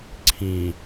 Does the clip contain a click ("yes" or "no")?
yes